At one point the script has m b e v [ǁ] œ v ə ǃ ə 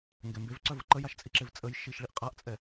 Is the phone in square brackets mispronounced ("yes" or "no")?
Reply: yes